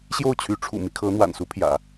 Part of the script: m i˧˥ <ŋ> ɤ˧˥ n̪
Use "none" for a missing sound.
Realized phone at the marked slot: kʰ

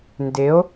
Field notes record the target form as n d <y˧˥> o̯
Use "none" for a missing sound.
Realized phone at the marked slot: e˧˥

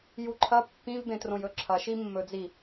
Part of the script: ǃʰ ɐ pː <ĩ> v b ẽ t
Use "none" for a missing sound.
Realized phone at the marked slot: ĩ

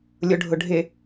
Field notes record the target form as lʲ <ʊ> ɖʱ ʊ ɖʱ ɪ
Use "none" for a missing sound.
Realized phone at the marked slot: ʊ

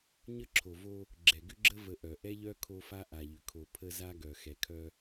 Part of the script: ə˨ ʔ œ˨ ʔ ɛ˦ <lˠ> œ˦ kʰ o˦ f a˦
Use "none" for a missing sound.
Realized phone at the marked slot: ʎ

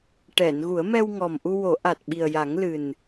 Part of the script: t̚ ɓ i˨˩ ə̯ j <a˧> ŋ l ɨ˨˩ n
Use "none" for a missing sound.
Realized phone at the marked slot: a˨˩˦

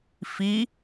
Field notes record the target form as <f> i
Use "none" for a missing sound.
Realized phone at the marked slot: f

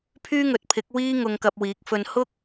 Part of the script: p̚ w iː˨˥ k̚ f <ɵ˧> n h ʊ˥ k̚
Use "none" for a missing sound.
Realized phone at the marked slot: ɵ˧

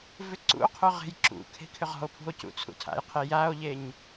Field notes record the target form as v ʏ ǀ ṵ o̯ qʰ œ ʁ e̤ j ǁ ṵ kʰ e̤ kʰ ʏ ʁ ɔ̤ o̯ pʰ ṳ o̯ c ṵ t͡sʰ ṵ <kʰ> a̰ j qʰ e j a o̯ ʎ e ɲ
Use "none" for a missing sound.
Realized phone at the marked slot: tʰ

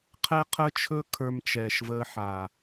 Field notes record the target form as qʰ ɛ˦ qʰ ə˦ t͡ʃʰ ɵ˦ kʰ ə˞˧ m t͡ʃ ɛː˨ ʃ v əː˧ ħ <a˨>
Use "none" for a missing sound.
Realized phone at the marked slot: a˨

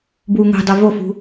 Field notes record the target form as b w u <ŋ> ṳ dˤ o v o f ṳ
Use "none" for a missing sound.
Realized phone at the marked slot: ŋ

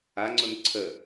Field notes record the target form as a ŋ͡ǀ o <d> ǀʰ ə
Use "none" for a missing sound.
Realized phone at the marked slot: n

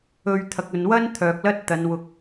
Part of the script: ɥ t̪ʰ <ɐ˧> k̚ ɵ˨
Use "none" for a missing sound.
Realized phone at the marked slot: ɐ˨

